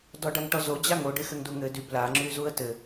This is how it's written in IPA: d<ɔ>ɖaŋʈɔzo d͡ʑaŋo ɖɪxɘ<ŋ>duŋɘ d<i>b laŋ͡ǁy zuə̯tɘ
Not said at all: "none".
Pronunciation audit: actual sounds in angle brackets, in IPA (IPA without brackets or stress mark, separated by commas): ɔ, ŋ, y